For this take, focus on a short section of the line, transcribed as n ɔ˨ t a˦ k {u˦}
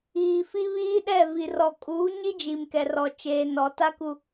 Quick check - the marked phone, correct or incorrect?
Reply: correct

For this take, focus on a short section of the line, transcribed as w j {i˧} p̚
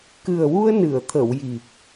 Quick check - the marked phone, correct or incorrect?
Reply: incorrect: i˨˩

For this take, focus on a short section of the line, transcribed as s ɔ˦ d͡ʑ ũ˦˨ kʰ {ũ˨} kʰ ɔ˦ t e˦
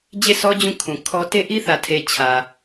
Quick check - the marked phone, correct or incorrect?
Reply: correct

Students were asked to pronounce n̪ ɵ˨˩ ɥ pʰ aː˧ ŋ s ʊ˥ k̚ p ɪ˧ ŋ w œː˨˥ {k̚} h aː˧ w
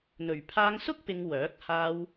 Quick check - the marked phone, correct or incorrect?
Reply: correct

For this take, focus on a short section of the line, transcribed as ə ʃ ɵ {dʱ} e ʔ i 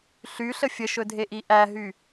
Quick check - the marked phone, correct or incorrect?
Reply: correct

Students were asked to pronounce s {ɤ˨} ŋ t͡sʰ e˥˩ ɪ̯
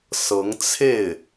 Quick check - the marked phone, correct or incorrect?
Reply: incorrect: ɤ˧˥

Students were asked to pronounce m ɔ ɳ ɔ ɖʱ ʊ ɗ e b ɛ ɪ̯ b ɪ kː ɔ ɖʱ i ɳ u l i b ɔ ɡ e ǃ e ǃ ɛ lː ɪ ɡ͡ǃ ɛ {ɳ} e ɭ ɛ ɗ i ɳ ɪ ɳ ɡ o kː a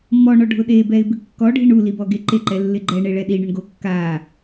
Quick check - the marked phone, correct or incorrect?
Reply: correct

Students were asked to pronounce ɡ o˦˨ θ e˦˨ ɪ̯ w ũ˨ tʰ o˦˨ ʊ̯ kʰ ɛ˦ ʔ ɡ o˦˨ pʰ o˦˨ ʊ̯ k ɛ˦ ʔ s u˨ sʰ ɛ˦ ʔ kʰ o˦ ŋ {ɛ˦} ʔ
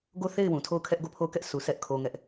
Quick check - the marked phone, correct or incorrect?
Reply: correct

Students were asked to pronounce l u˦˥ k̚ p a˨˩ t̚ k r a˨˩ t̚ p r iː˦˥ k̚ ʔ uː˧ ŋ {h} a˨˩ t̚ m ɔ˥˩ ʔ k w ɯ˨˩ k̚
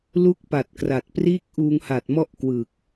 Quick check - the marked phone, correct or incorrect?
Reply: correct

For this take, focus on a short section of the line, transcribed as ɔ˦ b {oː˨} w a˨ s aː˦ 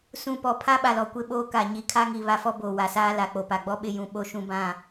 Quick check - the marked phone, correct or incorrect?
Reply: correct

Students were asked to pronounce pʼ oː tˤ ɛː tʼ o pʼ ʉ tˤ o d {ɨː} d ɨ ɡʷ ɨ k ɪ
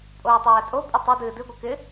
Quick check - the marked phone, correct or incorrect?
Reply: correct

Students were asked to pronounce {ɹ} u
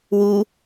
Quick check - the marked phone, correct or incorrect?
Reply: incorrect: w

